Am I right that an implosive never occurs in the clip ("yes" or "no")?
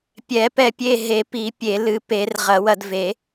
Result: yes